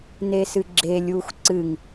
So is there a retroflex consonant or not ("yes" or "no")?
no